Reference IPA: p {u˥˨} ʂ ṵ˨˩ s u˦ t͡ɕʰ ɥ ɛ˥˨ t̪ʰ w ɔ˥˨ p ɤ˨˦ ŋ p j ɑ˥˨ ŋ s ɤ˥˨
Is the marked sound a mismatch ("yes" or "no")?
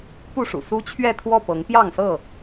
no